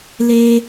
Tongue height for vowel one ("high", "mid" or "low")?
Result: mid